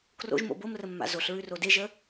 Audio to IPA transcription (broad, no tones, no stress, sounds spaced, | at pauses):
k r o̰ ʒ m o̰ b o m r ə mː a̰ z o ɬ ɹ ʉ r o d e ʒ ə